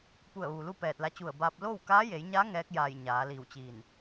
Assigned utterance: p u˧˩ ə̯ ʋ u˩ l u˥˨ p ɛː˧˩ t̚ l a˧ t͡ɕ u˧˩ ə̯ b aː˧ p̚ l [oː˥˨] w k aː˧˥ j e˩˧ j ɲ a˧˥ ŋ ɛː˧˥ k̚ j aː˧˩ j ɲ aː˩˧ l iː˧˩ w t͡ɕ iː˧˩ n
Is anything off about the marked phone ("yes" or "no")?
no